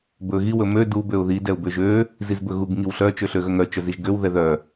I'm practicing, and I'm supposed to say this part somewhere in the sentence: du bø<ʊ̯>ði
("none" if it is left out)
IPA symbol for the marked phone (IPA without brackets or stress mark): ʊ̯